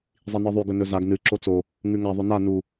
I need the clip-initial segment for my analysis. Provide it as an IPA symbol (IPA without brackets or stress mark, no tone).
zˤ